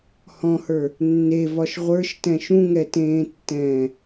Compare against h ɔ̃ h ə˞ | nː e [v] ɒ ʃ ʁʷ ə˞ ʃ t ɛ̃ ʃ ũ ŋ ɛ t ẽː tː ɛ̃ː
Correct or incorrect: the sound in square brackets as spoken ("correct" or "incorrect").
correct